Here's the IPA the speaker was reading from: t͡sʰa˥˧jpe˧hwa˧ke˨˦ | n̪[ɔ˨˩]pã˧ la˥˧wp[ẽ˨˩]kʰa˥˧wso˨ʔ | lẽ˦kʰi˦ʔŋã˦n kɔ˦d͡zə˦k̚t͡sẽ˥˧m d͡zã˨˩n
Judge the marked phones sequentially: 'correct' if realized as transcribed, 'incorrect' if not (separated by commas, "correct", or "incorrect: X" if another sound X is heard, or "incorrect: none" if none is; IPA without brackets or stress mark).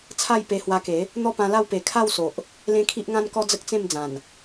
incorrect: ɔ˥˧, incorrect: e˨˩